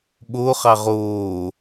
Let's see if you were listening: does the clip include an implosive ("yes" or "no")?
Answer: yes